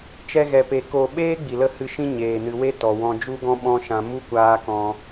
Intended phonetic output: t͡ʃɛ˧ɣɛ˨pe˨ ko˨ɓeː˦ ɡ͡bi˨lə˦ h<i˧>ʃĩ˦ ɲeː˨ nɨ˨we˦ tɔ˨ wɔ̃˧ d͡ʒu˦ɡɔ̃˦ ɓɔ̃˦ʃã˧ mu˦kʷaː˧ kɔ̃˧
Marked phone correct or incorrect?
incorrect: ɨ˧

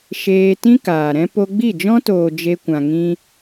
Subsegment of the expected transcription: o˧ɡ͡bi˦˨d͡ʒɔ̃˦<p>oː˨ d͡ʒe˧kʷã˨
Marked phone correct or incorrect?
incorrect: t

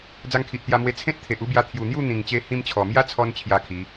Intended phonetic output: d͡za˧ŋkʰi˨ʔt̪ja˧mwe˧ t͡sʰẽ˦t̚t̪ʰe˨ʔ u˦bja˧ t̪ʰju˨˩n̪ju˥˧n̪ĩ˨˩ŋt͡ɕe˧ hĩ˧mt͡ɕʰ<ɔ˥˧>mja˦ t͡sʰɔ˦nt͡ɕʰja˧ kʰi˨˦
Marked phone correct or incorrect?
incorrect: ɔ˨˩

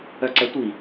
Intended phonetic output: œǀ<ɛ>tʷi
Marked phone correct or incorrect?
correct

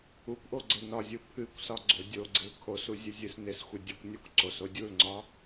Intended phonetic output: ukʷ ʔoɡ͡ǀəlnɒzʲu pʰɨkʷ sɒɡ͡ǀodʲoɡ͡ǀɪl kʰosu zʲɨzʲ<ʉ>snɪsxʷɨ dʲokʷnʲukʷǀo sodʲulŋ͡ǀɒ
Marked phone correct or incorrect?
incorrect: ɨ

